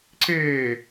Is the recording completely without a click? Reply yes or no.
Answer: no